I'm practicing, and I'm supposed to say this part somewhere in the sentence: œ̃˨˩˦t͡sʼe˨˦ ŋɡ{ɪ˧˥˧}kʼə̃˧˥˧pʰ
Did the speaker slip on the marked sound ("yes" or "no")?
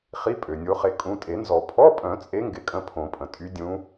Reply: no